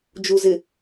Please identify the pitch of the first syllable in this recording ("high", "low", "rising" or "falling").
low